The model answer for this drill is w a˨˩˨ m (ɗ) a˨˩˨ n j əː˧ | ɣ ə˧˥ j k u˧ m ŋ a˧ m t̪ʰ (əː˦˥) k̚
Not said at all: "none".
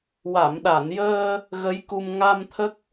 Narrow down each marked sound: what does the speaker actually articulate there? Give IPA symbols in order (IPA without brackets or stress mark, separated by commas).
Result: ɗ, ə˦˥